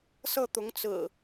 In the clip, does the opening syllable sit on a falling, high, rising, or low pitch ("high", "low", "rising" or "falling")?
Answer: falling